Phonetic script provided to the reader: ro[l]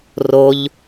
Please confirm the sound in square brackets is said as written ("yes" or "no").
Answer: no